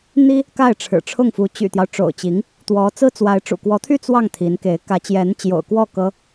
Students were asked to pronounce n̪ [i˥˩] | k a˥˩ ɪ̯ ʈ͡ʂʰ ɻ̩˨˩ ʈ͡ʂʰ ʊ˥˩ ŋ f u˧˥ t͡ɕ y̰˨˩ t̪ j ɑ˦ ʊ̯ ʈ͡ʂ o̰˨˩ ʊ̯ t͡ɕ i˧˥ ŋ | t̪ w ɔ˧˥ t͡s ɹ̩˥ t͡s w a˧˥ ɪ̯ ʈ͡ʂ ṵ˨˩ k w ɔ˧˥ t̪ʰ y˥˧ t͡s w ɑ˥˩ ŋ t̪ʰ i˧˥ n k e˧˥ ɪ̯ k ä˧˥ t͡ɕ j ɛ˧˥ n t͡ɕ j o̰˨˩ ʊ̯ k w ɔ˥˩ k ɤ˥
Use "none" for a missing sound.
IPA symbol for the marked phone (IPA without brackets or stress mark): i˥